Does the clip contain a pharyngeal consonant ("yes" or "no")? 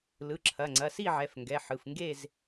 yes